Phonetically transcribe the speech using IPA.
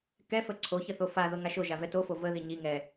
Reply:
k ɛ f ə ǀʰ o ç ə θ o f a ð ɤ ŋ a ʃ o ʒ a v ɛ t o f o v ə ð i ɲ i ŋ ɛ

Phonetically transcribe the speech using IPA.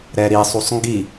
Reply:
ɾ ɛ ɾ i sˤ u sˤ ŋ ɡ i

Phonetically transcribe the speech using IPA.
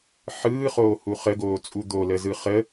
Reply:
ħ ɯː χ oː h u χ ə ɡ oː t͡sʼ u d̪ o l ə z ɯ χ ə

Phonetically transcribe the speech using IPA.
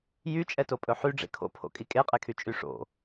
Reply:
j y t͡ʃʼ ɛ t o pʼ ɵ ħ y ɖ͡ʐ ḛ kʰ o̰ pʰ o̰ kʼ i kʼ e qʼ e kʰ y t͡ʃʼ y ʂ o̰

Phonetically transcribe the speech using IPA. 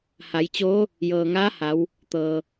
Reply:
h a˩˧ j t͡ɕ oː˧˥ | j ɤː˩ ŋ aː˧˥ h a˩˧ w | t̪ ɤː˩

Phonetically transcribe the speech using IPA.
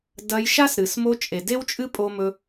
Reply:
d ɐ˧ j ʃ a˦ s ɾ ɨ˨ s m o˧ t͡ʃʼ e˨ d e˦ w t͡ʃʼ ɨ˦ pʼ o˧ m ɵ˧

